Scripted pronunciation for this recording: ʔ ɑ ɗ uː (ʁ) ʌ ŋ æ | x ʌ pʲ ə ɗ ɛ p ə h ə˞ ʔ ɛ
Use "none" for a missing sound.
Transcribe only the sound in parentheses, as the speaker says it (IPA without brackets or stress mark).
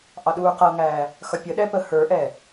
q